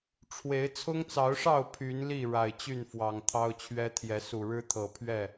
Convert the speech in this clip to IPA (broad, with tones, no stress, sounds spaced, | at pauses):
ʈ͡ʂʰ w e˨˦ ɪ̯ t͡sʰ ʊ˦ ŋ t͡s ɑ˨˦ ʊ̯ ʂ ɑ˥˨ ʊ̯ pʰ y˨˦ n l i˥˨ ɻ a˨˩ ɪ̯ t͡ɕ y˥˨ n f w ɑ˨˩ ŋ t̪ʰ ɑ˦ ʊ̯ t͡ɕʰ ɥ ɛ˦ t̪ʰ j ɛ˨˦ s u˨˩ ɻ ɻ̩˦ t̪ʰ ɤ˨˩ pʰ ɥ ɛ˥˨